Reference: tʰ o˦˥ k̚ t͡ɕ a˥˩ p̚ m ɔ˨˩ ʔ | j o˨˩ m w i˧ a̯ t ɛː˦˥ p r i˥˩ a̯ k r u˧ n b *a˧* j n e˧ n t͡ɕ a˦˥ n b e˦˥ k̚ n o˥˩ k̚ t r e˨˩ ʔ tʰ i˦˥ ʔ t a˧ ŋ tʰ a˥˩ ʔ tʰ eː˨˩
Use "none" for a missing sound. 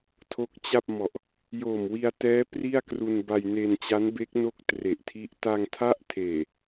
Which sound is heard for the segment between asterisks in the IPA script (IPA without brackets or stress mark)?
a˧